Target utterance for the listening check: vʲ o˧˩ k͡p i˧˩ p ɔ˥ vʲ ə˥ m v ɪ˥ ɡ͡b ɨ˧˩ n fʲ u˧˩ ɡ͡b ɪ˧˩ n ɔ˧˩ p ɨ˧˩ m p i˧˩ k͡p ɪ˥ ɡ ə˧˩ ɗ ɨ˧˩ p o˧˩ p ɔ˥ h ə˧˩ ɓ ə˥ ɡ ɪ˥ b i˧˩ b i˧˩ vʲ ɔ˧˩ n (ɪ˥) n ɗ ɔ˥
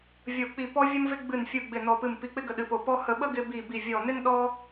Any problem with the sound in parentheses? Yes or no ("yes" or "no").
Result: no